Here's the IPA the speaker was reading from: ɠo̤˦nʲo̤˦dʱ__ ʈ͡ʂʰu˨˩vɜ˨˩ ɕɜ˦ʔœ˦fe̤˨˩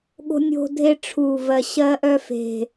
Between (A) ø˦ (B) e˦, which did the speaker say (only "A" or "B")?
B